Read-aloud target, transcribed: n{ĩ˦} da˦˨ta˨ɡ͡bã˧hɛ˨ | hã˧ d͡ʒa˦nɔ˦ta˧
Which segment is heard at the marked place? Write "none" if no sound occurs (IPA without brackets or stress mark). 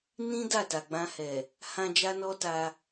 ĩ˦